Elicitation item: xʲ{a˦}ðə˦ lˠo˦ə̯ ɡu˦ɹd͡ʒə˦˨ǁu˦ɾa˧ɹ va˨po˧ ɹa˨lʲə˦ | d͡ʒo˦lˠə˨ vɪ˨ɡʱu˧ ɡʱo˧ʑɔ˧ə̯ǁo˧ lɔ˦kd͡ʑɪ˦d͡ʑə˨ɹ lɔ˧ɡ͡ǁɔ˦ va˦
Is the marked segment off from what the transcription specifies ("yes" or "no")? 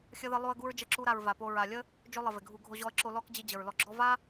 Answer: yes